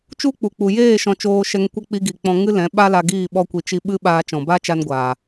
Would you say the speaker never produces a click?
yes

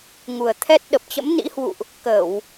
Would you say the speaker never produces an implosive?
no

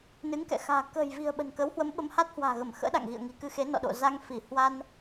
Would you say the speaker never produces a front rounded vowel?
yes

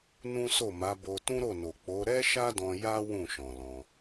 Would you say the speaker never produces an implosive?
yes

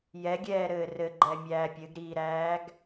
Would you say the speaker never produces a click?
no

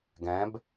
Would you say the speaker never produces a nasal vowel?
no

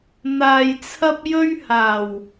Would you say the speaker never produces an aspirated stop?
no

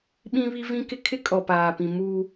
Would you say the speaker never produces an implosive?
no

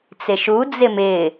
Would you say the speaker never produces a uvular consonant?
yes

